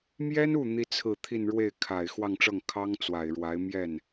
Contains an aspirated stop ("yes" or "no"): yes